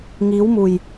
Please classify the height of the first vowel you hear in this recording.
high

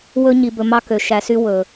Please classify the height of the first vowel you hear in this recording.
mid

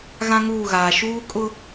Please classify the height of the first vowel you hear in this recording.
low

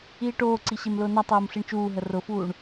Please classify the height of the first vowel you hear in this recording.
high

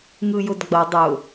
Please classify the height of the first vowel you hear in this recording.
high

